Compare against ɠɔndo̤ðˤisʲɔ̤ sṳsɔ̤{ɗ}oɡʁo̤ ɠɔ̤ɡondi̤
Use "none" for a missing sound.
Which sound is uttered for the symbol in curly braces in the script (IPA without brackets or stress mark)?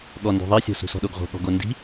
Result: ɗ